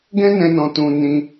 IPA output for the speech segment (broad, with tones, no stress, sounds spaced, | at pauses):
ɡ ɛ̃˦ n ɛ̃˧ n ɔ̃˨ t ũ˨ n ĩ˧